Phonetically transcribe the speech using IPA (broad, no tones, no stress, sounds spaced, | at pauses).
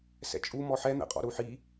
s ɛ̰ t͡ʃʼ u m ɔ ħ ɛ n̪ ɛ̰ qʼ ɔ̰ ɾ u ħ i